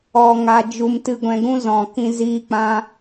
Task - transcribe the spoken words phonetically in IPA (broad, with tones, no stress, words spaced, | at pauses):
ɔ˧ŋa˧d͡ʒu˧m tɨ˧ɡʷɛ̃˧ɡũ˦zɔ̃˨ kĩ˧ ziː˧k͡pã˧